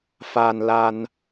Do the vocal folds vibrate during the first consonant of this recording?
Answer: no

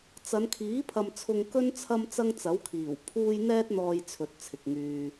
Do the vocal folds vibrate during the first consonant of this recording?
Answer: no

